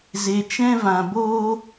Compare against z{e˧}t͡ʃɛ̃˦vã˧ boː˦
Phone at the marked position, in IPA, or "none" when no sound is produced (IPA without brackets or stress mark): e˧